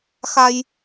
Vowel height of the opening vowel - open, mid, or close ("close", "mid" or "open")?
open